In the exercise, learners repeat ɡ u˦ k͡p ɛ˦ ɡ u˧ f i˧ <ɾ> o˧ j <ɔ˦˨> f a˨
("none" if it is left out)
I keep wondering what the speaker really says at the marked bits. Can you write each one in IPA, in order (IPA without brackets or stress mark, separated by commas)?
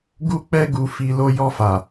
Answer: l, ɔ˧